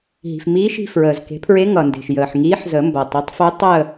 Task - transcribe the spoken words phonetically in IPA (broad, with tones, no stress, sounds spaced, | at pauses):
ɦ i̤˩ f m iː˧˥ ʃ i̤˦˨ f ɹ əː˩ z k e̤˩˥ pʰ ɹ e˧˥ ŋ ʌ˩ n d e̤˩ ʃ j əː˩ ħ ŋ iː˧˥ ħ z ə˨˩˦ m b ʌ˩ tˤ ʌ˩˥ tˤ f œ˧˥ tˤ ə˦˨